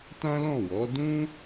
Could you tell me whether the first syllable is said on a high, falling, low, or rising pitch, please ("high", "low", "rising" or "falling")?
high